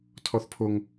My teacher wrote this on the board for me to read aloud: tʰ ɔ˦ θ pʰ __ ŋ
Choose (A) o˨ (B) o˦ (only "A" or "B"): B